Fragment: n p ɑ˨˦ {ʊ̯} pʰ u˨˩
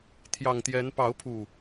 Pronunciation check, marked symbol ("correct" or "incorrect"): correct